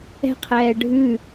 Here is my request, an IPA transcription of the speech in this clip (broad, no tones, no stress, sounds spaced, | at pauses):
ɛ̤ qʰ ɛː ɖʱ ʉ